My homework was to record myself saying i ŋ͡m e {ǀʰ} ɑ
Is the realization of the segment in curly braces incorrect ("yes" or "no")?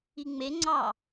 yes